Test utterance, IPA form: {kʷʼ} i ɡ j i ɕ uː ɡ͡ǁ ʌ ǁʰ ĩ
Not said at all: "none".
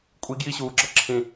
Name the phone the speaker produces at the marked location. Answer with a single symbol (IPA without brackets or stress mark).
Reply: kʷʼ